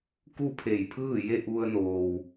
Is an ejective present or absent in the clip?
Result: absent